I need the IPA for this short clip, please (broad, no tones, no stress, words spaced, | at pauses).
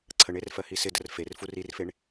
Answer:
ǀʰəɳer fɜhisɪdər fer furirfeɳ